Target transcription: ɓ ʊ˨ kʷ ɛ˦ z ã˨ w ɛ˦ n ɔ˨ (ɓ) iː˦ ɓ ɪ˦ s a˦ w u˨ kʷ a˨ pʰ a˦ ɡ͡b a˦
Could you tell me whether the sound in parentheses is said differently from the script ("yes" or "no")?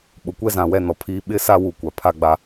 yes